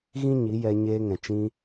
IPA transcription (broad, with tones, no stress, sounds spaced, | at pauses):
ɣ ĩ˦ ɲ i˨˦ j ɛ˧ ɲ eː˧ ŋ ɛ̃˨ t͡ʃ ĩ˧